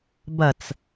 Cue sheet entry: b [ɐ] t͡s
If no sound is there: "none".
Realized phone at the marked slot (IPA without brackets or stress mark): ɐ